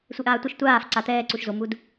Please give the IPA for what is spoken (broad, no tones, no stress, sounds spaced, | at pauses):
sʷ e ʔ aː tʷ ʌ ʃ tʷ aː f ǀ a t̪ ɛː ǀ u ʃ z o m u d